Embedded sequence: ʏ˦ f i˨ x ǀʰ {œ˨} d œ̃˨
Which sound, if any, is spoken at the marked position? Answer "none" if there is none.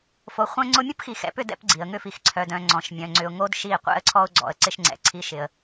œ˨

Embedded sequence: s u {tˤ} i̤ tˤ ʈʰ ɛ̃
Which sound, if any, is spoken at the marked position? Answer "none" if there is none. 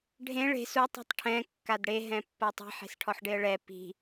tˤ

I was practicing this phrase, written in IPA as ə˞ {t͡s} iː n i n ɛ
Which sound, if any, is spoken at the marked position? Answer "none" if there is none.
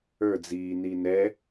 d͡z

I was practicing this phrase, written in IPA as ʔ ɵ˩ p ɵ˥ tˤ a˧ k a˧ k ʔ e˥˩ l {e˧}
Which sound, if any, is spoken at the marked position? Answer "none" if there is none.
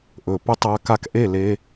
e˧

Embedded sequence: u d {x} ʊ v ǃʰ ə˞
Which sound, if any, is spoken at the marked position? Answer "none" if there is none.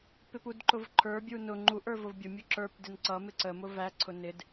ǃ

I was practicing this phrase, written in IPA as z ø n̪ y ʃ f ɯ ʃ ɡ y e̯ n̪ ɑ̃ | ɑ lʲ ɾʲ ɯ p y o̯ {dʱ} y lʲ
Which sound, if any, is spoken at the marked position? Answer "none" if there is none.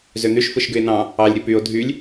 dʱ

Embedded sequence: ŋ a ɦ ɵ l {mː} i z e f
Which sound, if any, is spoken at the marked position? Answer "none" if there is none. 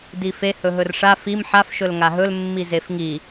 mː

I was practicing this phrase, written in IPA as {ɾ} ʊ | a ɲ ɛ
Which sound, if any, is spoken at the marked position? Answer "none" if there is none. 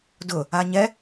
d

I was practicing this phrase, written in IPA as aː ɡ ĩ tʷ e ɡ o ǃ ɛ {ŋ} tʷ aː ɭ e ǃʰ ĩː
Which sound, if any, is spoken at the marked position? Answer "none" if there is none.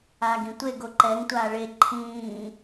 ŋ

